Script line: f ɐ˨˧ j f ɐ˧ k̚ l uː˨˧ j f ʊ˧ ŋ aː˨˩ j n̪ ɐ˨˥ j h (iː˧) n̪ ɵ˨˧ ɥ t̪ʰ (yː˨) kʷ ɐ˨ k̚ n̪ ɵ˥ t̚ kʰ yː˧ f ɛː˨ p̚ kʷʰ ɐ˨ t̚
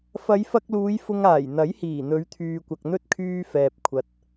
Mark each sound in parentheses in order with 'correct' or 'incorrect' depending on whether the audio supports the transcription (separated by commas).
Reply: incorrect, correct